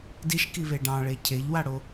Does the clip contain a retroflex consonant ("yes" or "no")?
yes